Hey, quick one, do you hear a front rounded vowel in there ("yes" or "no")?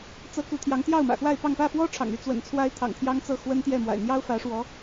yes